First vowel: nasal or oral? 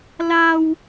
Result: oral